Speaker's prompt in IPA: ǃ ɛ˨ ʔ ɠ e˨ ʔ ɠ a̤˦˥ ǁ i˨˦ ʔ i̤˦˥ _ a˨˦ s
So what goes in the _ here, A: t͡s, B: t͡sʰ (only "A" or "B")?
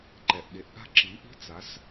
A